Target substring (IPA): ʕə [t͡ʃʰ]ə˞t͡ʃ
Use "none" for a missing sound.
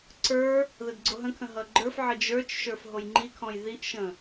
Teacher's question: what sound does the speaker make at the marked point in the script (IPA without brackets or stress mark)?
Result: d͡ʒ